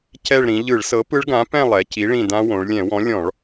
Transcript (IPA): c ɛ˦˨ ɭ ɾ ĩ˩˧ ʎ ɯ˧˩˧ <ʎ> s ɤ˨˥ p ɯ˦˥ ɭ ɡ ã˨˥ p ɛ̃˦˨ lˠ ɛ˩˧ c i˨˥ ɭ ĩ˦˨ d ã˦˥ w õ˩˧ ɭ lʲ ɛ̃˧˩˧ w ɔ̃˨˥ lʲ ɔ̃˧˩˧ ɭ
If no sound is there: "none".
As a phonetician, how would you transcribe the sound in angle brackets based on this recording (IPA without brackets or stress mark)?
ɭ